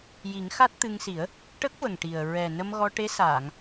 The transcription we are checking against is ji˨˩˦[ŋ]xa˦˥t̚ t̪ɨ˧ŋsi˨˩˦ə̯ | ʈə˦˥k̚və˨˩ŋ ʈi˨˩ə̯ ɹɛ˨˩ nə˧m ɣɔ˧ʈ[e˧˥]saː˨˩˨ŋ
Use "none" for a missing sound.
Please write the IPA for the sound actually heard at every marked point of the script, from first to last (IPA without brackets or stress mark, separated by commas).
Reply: ŋ, e˧˥